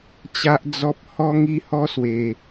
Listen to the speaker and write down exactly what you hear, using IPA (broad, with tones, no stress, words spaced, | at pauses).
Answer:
t͡ɕa˦ʔd͡zɔ˦p̚ hɔ˦ ŋi˦hɔ˦swe˧